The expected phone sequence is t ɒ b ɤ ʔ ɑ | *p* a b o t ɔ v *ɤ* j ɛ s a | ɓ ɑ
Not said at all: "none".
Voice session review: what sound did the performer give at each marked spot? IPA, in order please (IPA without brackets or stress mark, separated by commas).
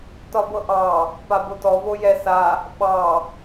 p, o